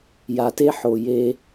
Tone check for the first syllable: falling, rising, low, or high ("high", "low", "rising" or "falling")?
low